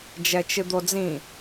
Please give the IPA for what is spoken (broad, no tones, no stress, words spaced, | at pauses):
d͡ʒɛt͡ʃɨd̪od͡zĩ